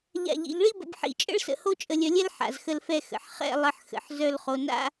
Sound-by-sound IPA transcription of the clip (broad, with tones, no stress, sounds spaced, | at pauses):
ʎ a̰˧˩ ʎ ḭ˩˧ ʎ ɭ i˥ b ə̰˧ b ħ ḭ˧˩ t͡ʃʼ ə̰˥ ɭ s ə̰˧˩ h o˥ t͡ʃʼ ə˧ lʲ œ˧ lʲ ɛ˥ l ħ a̰˩˧ z x ə˥˧ l f ɛ˥˧ x ə̰˩˧ ħ χ ɛ̰˥˧ lˠ ə˧ ħ x ə̰˩˧ ħ z œ˥˧ l χ o˧ n a̰˥